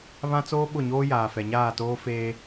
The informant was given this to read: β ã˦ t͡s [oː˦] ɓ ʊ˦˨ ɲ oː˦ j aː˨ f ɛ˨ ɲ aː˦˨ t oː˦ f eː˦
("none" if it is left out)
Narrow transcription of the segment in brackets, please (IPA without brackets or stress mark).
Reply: oː˦